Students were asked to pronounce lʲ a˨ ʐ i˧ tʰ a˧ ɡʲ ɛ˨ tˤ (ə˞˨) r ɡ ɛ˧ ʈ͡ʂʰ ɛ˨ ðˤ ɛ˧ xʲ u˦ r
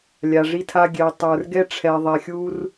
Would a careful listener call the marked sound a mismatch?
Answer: no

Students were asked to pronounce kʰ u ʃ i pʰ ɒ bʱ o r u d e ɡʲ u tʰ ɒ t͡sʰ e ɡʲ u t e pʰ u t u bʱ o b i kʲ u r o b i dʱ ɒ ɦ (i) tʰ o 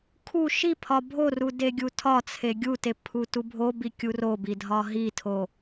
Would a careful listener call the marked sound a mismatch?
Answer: no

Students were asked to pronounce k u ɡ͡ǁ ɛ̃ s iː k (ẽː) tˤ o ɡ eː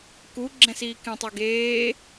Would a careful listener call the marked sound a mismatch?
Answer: yes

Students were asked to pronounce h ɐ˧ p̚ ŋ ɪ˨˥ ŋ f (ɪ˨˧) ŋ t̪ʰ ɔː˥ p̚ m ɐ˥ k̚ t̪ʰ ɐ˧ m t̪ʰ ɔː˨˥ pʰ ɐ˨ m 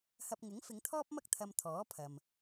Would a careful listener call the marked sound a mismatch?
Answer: no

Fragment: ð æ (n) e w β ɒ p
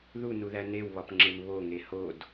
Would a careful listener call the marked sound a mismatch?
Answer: no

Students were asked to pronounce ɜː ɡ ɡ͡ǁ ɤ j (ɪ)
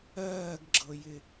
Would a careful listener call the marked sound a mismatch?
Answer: no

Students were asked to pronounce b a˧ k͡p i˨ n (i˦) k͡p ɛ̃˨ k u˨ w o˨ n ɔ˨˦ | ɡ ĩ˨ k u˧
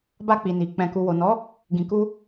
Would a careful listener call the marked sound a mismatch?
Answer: yes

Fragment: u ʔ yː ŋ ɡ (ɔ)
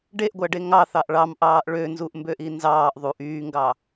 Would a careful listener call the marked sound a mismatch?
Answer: yes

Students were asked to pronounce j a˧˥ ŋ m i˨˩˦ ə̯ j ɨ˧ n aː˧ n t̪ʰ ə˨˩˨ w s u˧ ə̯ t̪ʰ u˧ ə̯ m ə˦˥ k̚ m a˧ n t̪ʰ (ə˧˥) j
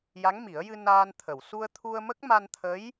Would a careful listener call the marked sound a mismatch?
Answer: no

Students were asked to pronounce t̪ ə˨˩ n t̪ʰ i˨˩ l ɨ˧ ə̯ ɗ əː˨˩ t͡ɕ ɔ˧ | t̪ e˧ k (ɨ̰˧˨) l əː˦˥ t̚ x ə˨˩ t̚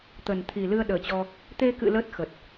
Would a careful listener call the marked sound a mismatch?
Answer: no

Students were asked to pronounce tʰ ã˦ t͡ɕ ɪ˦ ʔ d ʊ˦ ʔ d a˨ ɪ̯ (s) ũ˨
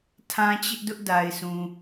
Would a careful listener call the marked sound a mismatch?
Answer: no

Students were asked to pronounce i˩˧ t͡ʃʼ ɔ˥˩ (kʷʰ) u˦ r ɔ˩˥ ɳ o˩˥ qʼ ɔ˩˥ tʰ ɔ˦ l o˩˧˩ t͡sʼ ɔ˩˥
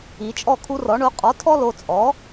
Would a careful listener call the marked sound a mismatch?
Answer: yes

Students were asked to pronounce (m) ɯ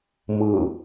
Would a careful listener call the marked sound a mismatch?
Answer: no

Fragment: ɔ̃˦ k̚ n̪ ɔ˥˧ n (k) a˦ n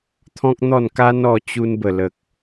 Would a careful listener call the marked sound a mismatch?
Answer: no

